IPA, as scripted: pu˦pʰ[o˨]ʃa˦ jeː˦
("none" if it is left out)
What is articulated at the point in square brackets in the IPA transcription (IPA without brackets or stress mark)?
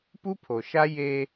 o˨